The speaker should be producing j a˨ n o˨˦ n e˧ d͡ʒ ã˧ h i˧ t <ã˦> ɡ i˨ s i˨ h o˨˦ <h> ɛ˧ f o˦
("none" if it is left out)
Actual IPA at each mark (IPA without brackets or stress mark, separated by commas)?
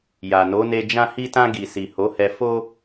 ã˧, h